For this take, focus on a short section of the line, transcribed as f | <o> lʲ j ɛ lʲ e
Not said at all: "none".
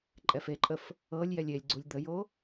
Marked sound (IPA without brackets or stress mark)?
ɤ